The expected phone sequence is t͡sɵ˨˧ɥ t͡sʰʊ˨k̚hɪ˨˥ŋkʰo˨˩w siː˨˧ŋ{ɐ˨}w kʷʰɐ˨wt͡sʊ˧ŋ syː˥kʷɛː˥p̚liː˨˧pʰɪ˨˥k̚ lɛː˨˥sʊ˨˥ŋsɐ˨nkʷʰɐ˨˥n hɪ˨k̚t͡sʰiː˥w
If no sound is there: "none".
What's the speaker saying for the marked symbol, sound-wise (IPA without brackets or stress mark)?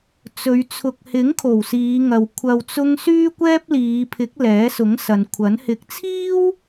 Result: ɐ˨